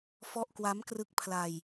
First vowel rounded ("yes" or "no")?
yes